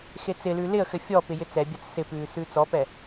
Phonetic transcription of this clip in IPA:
x e t͡s ɪ l ʉ l ɪ ə̯ x ɘ fʲ ɔ p ɪ j ɪ t͡s ɛ bʲ a t͡s s ɪ p ʉː s ʉː t͡s ɔ p ɛ

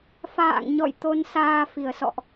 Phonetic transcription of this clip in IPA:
f a̰ː˧˨ ŋ ɲ ɔ̰˧˨ j t̪ o˧ n s aː˧ f i˧˩ ə̯ s ɔ̰˧˨ ʔ

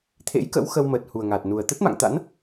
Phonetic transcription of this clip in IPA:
t̪ʰ ḛ˧˥ j k ə̰˧˥ w x ə˧ w m əː˨˩ t̚ h u˨˩ ə̯ ŋ a˨˩ t̚ n u˨˩ ə̯ t̪ ə˦˥ t̚ m a̰˧˨ ŋ t̪ a̰˧˥ n

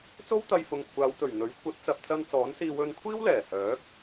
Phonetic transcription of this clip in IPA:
t͡s o˥ w t̪ ɐ˧ j f ʊ˨ ŋ kʷʰ aː˨˧ w t̪ ɵ˨˩ ɥ n̪ ɵ˨˥ ɥ kʷʰ ɐ˨˥ t̚ t͡s ɐ˨ p̚ t͡s ɐ˧ n t͡s ɔː˨˥ n s iː˧ w ɵ˧ n kʷʰ iː˥ w l ɛː˨˩ h œː˨˥ k̚

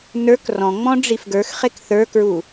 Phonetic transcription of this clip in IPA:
n ə˞ k r ɔ̃ ŋ͡m ɔ̃ ɖ͡ʐ i f ɡ ə˞ x χ e k θ ə˞ k ɹ u

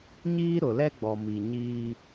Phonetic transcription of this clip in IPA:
ɲ iː˦ ɾ ʊ˨ l ɛ˦ ɡ͡b ɔ˨ m i˨ ɲ iː˦

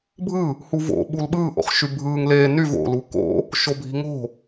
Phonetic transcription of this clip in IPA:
bʱ ɯ | h u v o̰ ɓ u l ɓ ɯː ʔ o̰ χ ʃ y bʱ ɯː ŋ l eː n y v o̰ l u k o̰ | ʃ o bʱ i̤ ŋ o̤

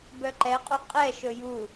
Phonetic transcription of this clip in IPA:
b œ ǃ ɛ qʼ u qʼ ɛ ʃ ɵ j u

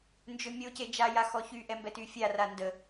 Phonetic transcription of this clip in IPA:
n d͡ʒ ø mʲ o c e d͡ʒ a j a x ɔ ç y ʔ ɛ m b ɛ t y fʲ a r a n d ə

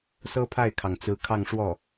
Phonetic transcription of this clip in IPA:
s ɤ˥ pʰ a˥˩ ɪ̯ kʰ ɑ˩ ŋ t͡s ɹ̩˧˥ kʰ ɑ˥˧ ŋ ʂ w ɔ˥˩

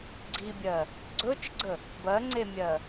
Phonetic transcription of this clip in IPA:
ɡ͡ǀ i bʲ ɜ | ɡ͡ǀ ɵ t͡ʃ ɡ͡ǀ ə | b ɜ ŋ͡ǀ e mʲ ɜ

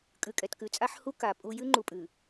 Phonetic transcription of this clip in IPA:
kʼ ʉ˨ kʼ ɛ˨ t k ʉ˨ t͡sʼ a˦ ħ h u˦ k a˨ pʼ u˦ j ʉ˦ ŋ͡ǃ u˨ pʼ ʉ˨

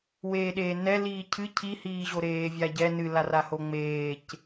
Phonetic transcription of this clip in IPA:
w eː ɗ eː n ɛ l iː cʰ ɨ cʰ i h iː ʑ o ɾ eː vʲ a ɟ ɛ n ɨ l a r a h o ŋ͡m eː c

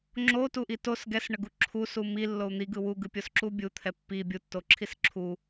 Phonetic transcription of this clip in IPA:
ŋ͡ǁ o t u ʔ i t o s ɡ ɛ s ɳ ə ɡ u ǁʰ u s u m i lː o u̯ n̪ i ɡ ɯ w u ɡ ɯ pʲ o s ǁ u bʲ u t̪ʰ ɛ pː i bʲ u tː o ǁʰ i s ǁʰ u

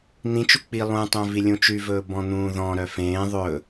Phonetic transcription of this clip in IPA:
n̪ ĩ t͡ʃ u k͡p i lˠ ũ tˤ œ̃ v i lʲ ũ t͡ʃ y v ɵː b ɔ̃ n̪ ũː ð ɔ̃ ɾ œ f ẽː ðˤ ɵ

